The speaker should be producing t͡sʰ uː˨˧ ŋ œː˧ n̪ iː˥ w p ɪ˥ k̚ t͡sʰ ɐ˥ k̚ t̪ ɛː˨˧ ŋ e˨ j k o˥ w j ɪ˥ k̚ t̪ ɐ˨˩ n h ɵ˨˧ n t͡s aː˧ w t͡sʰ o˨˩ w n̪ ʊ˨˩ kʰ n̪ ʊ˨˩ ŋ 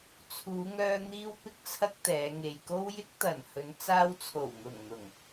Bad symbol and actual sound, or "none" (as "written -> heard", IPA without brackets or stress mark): kʰ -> ŋ